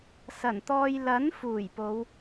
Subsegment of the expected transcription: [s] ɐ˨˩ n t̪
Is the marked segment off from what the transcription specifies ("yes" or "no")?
no